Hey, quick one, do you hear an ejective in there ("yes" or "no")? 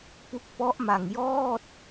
no